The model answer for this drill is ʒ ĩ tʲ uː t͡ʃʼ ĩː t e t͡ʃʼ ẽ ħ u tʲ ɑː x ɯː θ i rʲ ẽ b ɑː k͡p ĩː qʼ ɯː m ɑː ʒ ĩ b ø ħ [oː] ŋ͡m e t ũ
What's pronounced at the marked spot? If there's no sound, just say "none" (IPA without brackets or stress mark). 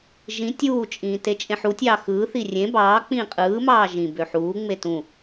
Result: uː